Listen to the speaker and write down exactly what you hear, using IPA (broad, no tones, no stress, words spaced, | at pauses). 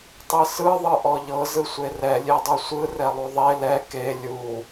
tˤɯsɯ ðˤɯʔɔʎɤ zɯsʷerɛ lʲedˤɯsʷɯ rɛlˠuðˤe lɛ ke lʲu